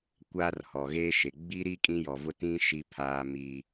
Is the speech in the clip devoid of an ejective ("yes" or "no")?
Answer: no